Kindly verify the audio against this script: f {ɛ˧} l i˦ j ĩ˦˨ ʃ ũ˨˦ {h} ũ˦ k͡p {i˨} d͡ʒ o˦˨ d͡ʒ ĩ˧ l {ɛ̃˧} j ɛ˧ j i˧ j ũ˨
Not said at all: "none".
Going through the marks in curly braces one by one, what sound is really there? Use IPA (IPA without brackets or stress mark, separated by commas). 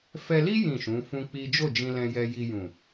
ɛ˧, f, i˦, ɛ̃˧